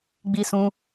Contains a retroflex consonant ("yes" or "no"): no